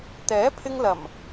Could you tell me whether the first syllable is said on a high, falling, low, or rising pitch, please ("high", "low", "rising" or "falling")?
rising